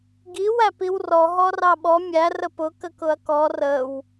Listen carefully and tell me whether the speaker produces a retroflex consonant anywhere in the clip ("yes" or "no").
no